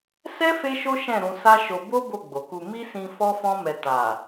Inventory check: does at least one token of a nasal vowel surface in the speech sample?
yes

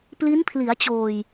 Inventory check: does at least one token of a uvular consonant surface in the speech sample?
no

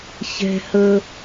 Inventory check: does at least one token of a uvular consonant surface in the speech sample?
no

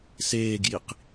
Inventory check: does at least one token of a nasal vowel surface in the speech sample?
no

